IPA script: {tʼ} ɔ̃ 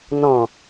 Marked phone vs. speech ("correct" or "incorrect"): incorrect